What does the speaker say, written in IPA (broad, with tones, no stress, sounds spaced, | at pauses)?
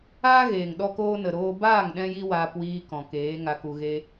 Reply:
aː˦ ɣ eː˨ ŋ ɗ ɔ˧ k oː˧ n ə˨ ɾ oː˧ b aː˦˨ ŋ ɗ ɛ̃˧ j i˧ w aː˦ p w iː˦ k ɔ̃˨ k eː˨˦ ŋ a˧ k u˧ ɣ e˦